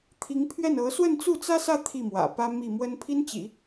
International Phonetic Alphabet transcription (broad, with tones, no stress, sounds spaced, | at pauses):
t̪ʰ i˧˥ ŋ pʰ ɥ ɛ˥˩ n ɤ˧˥ s w ə˥˧ n t͡s u˥˩ t͡s ä˥ s ä˥˧ t̪ʰ i˥˩ m w ä̰˨˩ p ä˥ m i˥˩ m w ə˥ n pʰ i˥ n t͡ɕ ḭ˨˩˦